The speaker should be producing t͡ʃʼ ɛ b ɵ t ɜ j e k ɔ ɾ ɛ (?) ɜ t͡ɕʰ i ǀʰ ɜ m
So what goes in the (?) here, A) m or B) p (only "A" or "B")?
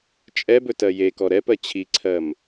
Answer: B